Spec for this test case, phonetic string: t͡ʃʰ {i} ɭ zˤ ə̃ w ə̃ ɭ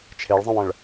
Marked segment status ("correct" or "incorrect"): incorrect